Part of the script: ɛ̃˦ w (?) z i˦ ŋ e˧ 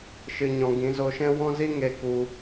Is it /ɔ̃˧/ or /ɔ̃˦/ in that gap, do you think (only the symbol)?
ɔ̃˦